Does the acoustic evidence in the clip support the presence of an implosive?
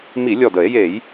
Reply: no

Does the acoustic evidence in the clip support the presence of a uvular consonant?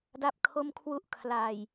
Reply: no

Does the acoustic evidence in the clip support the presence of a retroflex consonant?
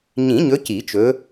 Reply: no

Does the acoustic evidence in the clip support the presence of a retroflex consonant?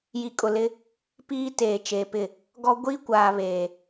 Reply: no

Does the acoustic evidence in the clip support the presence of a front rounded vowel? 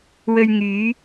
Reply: yes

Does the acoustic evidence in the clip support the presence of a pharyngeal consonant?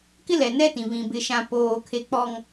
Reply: no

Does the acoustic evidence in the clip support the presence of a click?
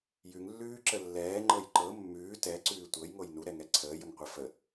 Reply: yes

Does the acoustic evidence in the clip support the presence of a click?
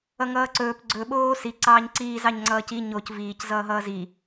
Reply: yes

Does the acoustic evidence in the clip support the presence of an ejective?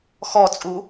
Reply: yes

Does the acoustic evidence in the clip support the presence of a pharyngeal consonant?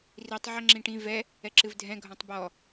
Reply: yes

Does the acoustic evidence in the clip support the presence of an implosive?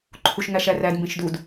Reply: no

